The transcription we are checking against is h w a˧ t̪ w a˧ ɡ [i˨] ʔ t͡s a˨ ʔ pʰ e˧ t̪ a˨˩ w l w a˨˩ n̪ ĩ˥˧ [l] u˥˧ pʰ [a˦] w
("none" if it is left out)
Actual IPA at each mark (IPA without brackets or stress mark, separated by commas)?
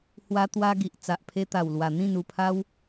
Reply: i˨, n, a˦